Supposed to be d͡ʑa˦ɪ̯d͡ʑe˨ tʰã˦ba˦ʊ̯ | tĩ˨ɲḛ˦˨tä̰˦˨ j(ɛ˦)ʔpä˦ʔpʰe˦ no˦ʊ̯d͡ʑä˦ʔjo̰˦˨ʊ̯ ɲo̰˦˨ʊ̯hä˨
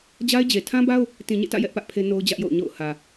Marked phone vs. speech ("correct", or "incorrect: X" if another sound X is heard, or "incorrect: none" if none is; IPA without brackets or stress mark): correct